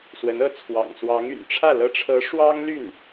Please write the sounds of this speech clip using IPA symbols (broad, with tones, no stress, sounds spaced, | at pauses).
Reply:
s w ə˧˥ n ɤ˥˩ t͡sʰ w ɑ̰˨˩ ŋ s w ɑ˧˥ ŋ y̰˨˩ n ʈ͡ʂʰ ä˥˩ l ɤ˧˥ ʈ͡ʂʰ ɤ˧˥ ʂ w ɑ˥ ŋ l y˥˩ n